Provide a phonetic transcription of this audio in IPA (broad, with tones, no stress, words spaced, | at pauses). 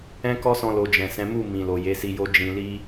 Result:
ɛ̃˦kɔ˦sɔ̃˧lo˨ d͡ʒɛ̃˨sɛ̃˨˦ mu˦˨mĩ˨lo˨ je˨˦si˧jo˦ d͡ʒĩ˧li˦